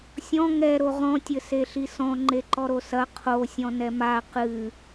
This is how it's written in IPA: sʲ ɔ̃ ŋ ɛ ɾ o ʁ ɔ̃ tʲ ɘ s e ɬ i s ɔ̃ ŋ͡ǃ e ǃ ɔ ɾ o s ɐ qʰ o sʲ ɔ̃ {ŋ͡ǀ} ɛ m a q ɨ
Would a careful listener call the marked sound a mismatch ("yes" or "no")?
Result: yes